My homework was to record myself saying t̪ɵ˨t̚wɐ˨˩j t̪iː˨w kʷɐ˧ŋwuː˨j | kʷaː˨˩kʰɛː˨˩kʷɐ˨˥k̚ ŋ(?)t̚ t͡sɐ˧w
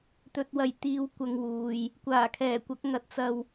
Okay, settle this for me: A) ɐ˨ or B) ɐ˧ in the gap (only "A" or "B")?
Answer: B